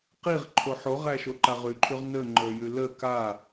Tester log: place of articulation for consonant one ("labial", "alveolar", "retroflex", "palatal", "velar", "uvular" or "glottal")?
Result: uvular